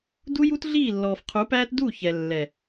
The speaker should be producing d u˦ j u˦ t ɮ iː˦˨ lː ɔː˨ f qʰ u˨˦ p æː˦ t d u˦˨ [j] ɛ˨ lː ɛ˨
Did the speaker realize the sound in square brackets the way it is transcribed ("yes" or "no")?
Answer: no